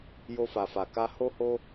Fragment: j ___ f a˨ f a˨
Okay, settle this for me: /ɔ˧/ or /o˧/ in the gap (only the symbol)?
o˧